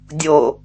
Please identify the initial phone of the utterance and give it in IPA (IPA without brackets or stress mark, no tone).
dʲ